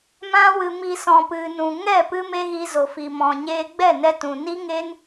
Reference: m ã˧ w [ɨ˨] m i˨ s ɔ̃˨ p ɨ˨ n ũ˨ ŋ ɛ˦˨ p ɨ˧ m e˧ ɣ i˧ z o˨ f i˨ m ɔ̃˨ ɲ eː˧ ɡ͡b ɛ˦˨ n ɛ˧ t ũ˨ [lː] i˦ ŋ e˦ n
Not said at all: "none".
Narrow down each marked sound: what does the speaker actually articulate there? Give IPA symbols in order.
ɨ˨, n

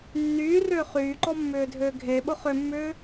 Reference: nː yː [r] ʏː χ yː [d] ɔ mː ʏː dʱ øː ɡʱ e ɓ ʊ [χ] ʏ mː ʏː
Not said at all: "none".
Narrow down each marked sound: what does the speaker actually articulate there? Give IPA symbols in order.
r, ǃ, χ

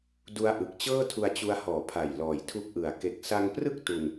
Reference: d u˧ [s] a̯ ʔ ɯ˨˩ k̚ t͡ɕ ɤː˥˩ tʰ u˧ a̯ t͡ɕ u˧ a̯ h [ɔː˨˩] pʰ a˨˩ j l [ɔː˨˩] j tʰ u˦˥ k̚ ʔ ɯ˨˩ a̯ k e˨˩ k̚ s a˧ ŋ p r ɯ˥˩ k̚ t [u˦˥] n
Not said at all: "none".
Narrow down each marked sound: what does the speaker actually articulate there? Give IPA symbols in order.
none, ɔː˨˩, ɔː˨˩, u˧

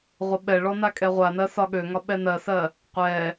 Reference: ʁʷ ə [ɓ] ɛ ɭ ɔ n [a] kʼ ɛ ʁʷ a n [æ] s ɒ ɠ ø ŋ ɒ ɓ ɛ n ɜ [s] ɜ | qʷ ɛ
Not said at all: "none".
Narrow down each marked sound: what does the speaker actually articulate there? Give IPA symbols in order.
ɓ, a, ɜ, s

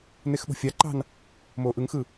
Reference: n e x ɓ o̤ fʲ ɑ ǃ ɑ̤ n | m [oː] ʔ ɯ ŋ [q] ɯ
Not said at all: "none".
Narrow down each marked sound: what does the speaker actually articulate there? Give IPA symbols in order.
oː, x

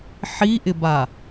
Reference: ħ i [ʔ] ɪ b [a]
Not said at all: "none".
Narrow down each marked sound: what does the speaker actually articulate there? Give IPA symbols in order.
ʔ, a

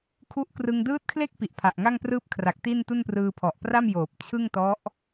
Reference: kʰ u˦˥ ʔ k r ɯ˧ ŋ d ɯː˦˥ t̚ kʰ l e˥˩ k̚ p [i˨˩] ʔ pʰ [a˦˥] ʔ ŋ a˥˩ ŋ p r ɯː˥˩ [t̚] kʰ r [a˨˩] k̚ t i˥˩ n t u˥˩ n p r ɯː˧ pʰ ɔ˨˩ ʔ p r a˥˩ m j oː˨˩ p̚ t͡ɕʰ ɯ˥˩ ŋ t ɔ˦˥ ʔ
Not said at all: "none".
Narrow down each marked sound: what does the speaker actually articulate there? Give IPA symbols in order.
i˨˩, a˨˩, p̚, a˨˩

